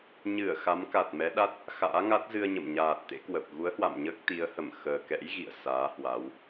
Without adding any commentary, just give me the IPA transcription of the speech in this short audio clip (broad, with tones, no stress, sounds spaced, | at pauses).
ɲ ɨ˧˩ ə̯ x a˨˦ m k a˨˩ t̚ m ɛ˨˦ ɗ a˦˥ t̚ | x a̰ː˧˥ ŋ a˦˥ t̚ z ɨ˧ ə̯ ɲ ə̰˧˨ m ɲ aː˨˩ t̚ t̪ ḛ˧˥ k w ə˨˩ p̚ ɣ u˨˦ ə̯ h w a̰˧˨ m ɲ əː˦˥ k̚ t̪ i˨˦ ə̯ h ə˧˩ m x əː˨˩ k ɛ̰˧˥ j ɣ ḭ˧˨ ə̯ s aː˨˦ h w a˨˦ w